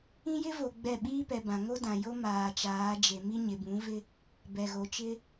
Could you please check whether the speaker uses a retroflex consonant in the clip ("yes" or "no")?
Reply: no